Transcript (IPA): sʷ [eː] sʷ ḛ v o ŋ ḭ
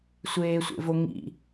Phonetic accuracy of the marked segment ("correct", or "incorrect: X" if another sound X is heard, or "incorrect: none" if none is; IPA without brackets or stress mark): correct